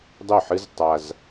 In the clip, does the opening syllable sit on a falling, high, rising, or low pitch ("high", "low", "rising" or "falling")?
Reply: falling